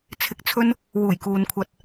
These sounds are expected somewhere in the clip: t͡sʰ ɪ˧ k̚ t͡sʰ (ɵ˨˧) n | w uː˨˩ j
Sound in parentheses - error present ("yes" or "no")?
yes